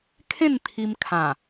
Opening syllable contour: falling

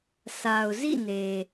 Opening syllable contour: low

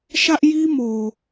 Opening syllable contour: high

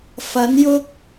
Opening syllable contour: rising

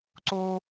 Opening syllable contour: high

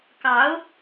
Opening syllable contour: rising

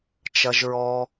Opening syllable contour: high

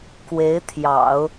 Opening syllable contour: rising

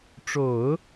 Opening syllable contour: low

